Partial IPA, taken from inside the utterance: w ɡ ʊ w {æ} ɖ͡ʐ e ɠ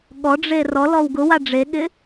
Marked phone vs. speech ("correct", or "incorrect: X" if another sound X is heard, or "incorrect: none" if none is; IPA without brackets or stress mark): incorrect: a